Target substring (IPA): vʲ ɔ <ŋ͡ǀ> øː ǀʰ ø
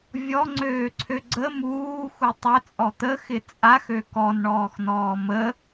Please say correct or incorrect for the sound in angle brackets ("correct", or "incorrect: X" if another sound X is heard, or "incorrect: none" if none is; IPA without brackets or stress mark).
correct